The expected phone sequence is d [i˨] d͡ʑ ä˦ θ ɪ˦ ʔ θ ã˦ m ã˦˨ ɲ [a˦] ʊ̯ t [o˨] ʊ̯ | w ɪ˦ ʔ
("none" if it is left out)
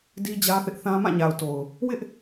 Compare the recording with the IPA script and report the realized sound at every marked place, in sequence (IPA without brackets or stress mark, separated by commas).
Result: i˦, a˨, o˨